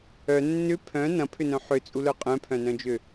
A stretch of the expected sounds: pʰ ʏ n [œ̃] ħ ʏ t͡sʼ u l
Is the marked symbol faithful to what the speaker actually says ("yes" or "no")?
yes